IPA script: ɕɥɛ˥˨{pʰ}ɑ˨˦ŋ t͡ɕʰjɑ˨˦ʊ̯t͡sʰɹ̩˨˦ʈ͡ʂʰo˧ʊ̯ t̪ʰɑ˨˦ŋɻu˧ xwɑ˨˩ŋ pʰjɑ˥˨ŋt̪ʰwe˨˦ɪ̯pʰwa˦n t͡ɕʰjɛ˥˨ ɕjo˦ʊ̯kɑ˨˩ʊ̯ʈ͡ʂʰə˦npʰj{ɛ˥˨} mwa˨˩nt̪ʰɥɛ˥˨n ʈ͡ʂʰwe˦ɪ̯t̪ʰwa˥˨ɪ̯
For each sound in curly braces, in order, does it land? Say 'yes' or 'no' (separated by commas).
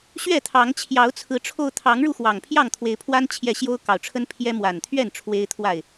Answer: no, no